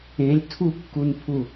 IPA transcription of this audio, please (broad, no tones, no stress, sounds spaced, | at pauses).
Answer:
ẽ lʲ tʰ u kː u n pʰ u